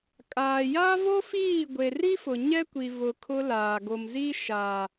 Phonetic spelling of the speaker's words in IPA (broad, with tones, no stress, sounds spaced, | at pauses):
kʼ aː˨ j a˦ v o˦ f iː˦˨ ɡʷ e˨ r i˦ f ʊ˨ ɲ ɛ˦ kʷ i˨ v ʊ˨ kʰ ʊ˦ l aː˨ ɡ o˨ m z i˦ ʃ a˨